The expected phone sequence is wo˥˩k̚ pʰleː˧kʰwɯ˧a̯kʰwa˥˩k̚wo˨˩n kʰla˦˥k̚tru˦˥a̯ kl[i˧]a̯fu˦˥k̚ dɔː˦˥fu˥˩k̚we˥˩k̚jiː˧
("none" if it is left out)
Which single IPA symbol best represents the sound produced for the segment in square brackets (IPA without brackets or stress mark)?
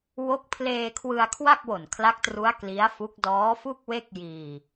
i˦˥